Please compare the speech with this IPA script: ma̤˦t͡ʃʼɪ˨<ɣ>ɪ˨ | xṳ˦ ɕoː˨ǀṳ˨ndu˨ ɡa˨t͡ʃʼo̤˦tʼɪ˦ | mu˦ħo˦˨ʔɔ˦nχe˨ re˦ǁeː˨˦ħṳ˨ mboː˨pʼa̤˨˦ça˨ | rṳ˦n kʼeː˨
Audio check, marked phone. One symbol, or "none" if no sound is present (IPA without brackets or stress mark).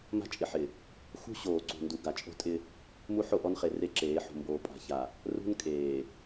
ħ